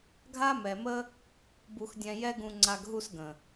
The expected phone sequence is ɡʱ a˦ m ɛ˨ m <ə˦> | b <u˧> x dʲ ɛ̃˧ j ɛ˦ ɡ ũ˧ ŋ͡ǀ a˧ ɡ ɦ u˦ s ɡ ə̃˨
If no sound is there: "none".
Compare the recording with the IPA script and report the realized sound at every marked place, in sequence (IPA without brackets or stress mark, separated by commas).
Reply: ə˦, u˧